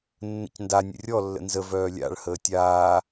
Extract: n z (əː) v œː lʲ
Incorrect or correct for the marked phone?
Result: incorrect: ə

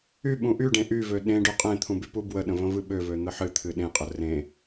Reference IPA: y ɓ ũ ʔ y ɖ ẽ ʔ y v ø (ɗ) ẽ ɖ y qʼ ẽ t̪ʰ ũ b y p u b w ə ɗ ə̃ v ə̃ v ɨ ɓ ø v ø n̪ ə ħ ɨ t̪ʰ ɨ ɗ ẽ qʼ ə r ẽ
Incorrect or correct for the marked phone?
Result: correct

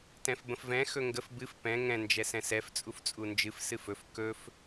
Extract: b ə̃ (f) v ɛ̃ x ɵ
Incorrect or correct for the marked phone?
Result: correct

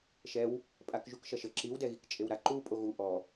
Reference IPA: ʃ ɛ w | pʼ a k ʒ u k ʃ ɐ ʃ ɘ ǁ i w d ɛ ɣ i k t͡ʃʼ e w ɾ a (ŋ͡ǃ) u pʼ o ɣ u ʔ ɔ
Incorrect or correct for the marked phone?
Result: incorrect: ǃ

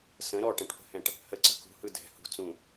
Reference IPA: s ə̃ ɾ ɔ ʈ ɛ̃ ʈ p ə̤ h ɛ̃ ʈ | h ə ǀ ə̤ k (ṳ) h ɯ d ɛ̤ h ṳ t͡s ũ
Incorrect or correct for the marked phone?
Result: correct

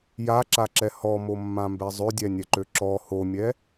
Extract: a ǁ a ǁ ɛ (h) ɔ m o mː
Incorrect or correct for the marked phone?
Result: correct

